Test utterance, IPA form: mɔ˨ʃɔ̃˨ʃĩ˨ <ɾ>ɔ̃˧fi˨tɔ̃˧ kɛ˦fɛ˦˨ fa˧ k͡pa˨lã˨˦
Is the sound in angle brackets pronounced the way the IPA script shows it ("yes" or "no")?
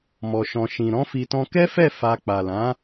yes